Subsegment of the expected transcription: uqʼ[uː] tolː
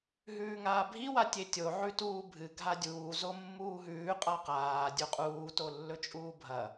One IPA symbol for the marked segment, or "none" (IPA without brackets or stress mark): uː